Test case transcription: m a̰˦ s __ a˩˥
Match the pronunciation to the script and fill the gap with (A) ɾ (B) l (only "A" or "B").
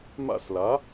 B